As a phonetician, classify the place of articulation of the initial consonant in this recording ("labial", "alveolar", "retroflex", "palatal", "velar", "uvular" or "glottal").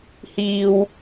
glottal